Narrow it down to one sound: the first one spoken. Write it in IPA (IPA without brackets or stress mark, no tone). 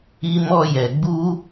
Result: i